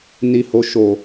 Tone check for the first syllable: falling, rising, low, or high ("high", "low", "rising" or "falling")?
low